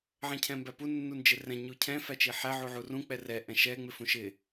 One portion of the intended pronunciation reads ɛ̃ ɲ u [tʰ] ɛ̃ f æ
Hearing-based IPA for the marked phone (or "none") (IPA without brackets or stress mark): cʰ